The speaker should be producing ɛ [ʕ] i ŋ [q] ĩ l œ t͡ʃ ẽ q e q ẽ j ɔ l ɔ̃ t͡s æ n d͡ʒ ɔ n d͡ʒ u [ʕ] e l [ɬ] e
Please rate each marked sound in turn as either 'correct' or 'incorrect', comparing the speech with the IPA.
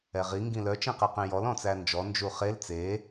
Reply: incorrect, incorrect, incorrect, incorrect

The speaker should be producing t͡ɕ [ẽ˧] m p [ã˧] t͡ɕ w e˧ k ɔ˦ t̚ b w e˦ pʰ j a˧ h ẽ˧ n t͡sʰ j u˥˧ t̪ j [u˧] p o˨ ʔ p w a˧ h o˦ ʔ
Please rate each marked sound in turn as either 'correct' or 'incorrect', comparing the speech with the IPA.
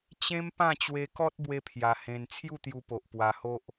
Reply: incorrect, incorrect, correct

